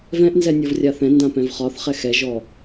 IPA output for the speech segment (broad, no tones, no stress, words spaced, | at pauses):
vɛ̃ʔnzɛ nʲɔvrʲaθɛ̃ ndãpɛ̃vχɒθχɛ xɛʒɔ